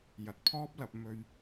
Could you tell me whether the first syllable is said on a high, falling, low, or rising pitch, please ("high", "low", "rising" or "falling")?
rising